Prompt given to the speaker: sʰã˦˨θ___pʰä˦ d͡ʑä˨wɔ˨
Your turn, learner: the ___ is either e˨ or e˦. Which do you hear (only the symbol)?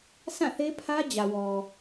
e˦